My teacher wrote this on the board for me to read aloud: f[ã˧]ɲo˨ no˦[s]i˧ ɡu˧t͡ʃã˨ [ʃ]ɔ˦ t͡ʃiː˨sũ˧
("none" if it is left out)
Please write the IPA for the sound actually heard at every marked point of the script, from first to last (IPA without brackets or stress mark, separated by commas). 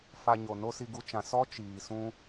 a˧, s, s